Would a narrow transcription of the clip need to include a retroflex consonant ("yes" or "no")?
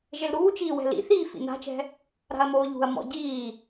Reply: no